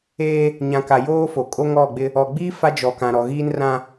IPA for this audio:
eː˦ | ɲ ã˨ k a˨ j oː˦ f o˨ kʼ o˦ ŋ ɔ˦˨ ɡ͡b ɪ˦ | ɔ˨ ɡ͡b iː˦ f a˦ d͡ʒ ɔ˨ k ã˨ ɾ ɔ˨ ɣ iː˦ n r ã˦

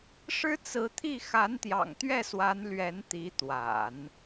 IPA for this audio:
ʂ ɻ̩˥ t͡s ɹ̩˧˥ t̪ʰ i˥˩ x a˧˥ n t̪ j ɑ̰˨˩ ŋ t̪ ɥ ɛ˥˩ s w a˧˥ n l ɥ ɛ˧˥ n t̪ i˧˥ t̪ w a̰˨˩˦ n

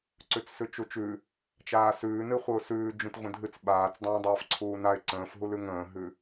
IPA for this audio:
ǀ ʉ t͡s s ʉ t͡ʃ u t͡ʃ ʉ | t͡ʃ aː s ʉː n ɨ χʷ ɨ ʊ̯ s ʉː d͡ʒ ũ t ʁʷ ə̃ dʱ ɨ t͡s ɓ aː t͡s dˤ ə̃ː dˤ aː f ǀʰ uː n a ɪ̯ ǀ ə̃ː f ɦ u l ʉ ŋ ə̃ː ɦ ʉ

